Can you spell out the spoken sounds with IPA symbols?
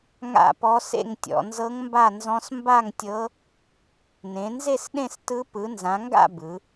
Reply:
ŋa̰˥˧pɔ˦˥sḛ˥˧ŋtʲɔ̰˨˦ nzɤ˦˥ŋmba˥˧nzɔ̃˦˥s mba˥˧ŋtʲɤ˦˥ | nẽ˨˦nze˥˧sɗẽ˥˧s tɯ˦˥ pɯ˨˦nzã˨˦ŋɡa̰˥˧ bɯ˨˦

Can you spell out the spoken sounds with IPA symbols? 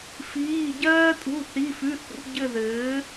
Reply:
fiː˧˥˧ ɟɜː˥tʼṳ˧˥˧ θi˧˥˧fʉ˧˥˧ θṵ˧˥˧ ɟɘ˥˧ðɘː˨˥

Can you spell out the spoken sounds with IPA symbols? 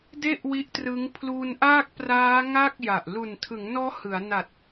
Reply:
de˥˩ʔwi˦˥ʔtrɯ˦˥ŋ pʰlu˧nʔaː˥˩k̚praː˦˥ ŋa˥˩k̚ja˨˩ʔ lu˨˩ntʰɯ˩˦ŋnɔː˦˥ hɯ˩˦a̯na˨˩t̚

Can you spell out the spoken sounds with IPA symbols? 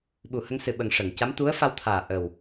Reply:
ɓu˨˩hə˧ŋsɨ˨˩ ɓə˨˩ŋ ʂə˨˩˨ŋca˧˥m t̪u˧˥ə̯fa˧w t̪ʰaː˨˩ʔə˨˩w

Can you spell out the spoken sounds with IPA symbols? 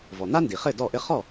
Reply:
vɔ˩n̪a˥ndi˩χɘ˥˩ dɔ˥˩ʔɘ˥ χɔ˥˩

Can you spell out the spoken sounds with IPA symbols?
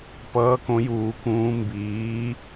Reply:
pʌː˨˥kõ˨˥juː˨˩˦kũː˨˥ mbiː˨˥

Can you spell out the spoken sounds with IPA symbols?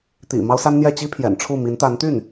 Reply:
t̪ḭ˨˩ mɑ˥ʊ̯sa˥nn̪jɛ˥˩ t͡ɕi˥pʰjɛ̰˨˩n ʈ͡ʂʰu˥˩mi˧˥n t̪a˧˥nt̪y˥˩n

